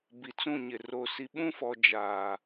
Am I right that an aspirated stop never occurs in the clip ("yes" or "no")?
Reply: yes